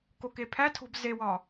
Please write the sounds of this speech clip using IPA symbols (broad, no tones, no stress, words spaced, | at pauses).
kokepʰætʰo̤b zewɒ